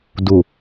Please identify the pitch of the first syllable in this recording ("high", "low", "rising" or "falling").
low